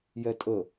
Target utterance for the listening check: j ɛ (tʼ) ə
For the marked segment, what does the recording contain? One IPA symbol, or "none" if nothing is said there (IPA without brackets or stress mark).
tʼ